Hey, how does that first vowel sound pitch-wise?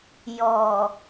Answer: low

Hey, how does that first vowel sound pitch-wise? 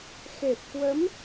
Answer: low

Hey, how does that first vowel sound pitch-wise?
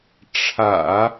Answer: low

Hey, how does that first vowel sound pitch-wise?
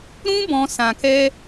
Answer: high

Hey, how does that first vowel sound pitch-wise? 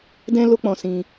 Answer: high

